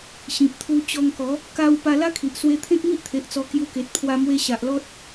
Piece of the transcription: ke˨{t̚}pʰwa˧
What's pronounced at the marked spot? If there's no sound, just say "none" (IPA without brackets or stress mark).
t̚